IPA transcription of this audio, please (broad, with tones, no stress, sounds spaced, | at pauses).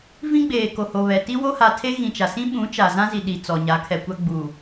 v ĩ˦ ɡ͡b eː˨ k o˨ h o˨ β ɛ˨ t i˦ w o˦ h a˨ tʰ e˦ ɣ ĩ˨ t͡ʃ a˨ s ĩ˦ ɓ ũ˨˦ t͡ʃ a˨ z ã˦ z i˨ ɗ i˨ t͡s ɔ˨ ɲ a˨˦ kʰ ɛ˨ kʷ a˦ ɡ͡b u˨